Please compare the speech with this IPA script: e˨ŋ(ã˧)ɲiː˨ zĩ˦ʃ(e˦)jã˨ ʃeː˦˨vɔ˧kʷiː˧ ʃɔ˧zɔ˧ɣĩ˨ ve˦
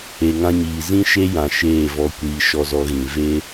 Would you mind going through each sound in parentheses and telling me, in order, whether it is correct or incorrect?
correct, correct

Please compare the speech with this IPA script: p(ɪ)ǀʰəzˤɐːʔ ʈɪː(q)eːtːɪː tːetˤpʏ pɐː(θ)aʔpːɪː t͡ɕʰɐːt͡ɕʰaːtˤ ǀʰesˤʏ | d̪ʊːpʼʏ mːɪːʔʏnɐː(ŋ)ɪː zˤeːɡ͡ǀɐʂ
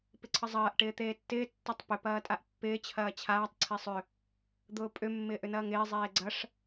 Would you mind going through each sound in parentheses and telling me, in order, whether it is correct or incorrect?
correct, incorrect, incorrect, correct

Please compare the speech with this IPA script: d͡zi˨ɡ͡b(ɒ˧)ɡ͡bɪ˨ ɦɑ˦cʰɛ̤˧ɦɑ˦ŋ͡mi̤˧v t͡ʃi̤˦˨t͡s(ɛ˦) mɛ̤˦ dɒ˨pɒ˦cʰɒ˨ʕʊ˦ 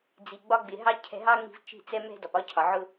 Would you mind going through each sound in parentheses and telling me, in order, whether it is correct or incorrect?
correct, correct

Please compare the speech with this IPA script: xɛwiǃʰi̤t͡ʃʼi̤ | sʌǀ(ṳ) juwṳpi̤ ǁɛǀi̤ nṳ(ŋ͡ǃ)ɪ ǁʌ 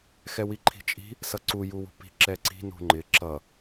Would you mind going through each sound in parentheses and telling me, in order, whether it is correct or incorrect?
incorrect, correct

